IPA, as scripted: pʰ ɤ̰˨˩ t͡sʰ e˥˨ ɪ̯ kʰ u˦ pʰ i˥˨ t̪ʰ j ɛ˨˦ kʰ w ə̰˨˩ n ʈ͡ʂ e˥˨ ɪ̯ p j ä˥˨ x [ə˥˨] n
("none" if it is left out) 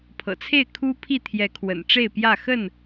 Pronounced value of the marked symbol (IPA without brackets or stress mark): ə˥˨